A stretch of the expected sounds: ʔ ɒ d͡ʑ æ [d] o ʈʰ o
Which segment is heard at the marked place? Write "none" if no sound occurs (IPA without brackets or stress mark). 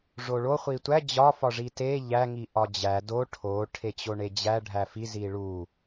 d